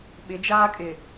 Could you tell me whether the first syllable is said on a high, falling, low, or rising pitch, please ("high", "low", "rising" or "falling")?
rising